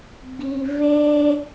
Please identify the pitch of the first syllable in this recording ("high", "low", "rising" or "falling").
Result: low